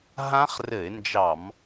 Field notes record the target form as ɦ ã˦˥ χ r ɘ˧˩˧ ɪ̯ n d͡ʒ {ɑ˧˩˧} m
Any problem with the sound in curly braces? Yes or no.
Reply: no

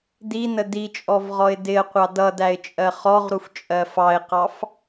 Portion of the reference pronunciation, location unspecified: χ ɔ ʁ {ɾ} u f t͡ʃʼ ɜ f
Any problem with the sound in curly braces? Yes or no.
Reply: no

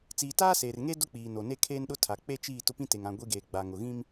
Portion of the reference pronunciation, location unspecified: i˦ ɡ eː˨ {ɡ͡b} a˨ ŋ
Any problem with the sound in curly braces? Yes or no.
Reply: no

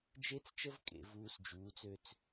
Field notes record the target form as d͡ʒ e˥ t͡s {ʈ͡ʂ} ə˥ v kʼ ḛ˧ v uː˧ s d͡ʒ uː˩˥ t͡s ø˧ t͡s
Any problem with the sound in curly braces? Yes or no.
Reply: yes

